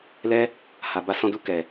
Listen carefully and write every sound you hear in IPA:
l ɛ˦ | h a˧ b a˦ s ɔ̃˧ d u˧ k ɛ˨

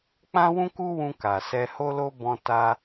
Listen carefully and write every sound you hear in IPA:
k͡p ã˦ w ũ˦ k u˦ w ũ˧ k a˨ s ɛ˧ h o˦ l o˦ b ɔ̃˧ t a˧

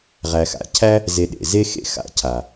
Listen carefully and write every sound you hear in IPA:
ʁ æ˨ x a̰˨ cʰ æ˦ | z e˧ ɗ ḛ˨ z e˦ x ḛ˦ x a̰˧ cʰ a˨

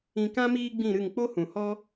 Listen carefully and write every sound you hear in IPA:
ĩ˧ k ã˦ m iː˦ ɡ͡b ĩ˦˨ ɾ ɨ˦˨ ŋ k͡p o˦ h ũ˨ h ɔ˦

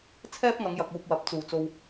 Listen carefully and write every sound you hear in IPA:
t͡sʰ ɛː˥ p̚ ŋ ɐ˨˧ ŋ j ɐ˨ k̚ uː˧ p̚ w ɐ˨˥ p̚ t͡s uː˨˩ t͡s o˧ w

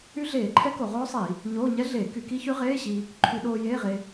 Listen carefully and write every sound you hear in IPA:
y˦˥ ɮ eː˧˩˧ ǃʰ ɛ˦˥ k o˧˩˧ ʁ oː˦˥ sˤ i˧˩˧ | ɲ oː˧˥˧ ɲ ɛ˦˥ ɮ eː˧˩˧ k y˧˩˧ k i˦˥ ç y˦˥ ʁ eː˧˥˧ ɕ i˧ | ǃʰ y˧˩˧ ɗ oː˧ j eː˧˥˧ ʁ e˧

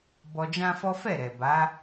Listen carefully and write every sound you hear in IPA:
b ɔ˧ d͡ʒ ã˦ f ɔ˦ f ɛ˦˨ ɾ ɛ˨ b a˨˦

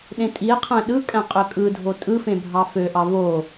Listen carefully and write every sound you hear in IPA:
ɗ ẽ tʼ i e̯ qʰ æ̃ ɗ ɯ kʼ æ̃ qʼ ø kʼ ɯ dʱ o tʼ ɯ f ẽ bʱ ɑ f ø ʔ ɑ v o

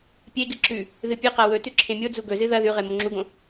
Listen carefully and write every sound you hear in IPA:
pʲ e ɡ ɨ ǁ ʉ | ð ɨ pʲ ɨ q a w ɵ t ʉ ǁʰ ẽ mʲ o d͡z u ɡ ɵ z ɨ ð ɐ ð ʉ ʁ e m o ŋ͡ǁ u ɡ õ

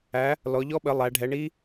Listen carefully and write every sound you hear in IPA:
æ˨˦ | l ɔ˨˦ ʎ ɔ˦˥ ɓ ə˨˦ lˠ æ˨˦ ɖʱ ɛ˨˦ ɳ i˦˥

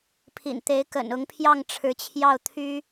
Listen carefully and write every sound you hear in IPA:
pʰ ḭ˨˩ n t̪ e˧˥ ɪ̯ k ə̰˨˩ n ʊ˧˥ ŋ pʰ j ɑ˥˩ ŋ ʈ͡ʂʰ ɻ̩˧˥ t͡ɕʰ j ɑ˥˩ ʊ̯ t̪ʰ y˥

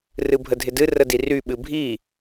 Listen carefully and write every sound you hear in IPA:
r ɨ bʱ ə dʱ ɪ d ɨ r ə d i r y ɓ ɨ bʱ i

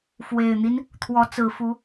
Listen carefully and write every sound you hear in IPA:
f w e˨˩ ɪ̯ n̪ i˦ n | t̪ʰ w ɔ˨˦ t͡s ɹ̩˨˩ f u˨˦

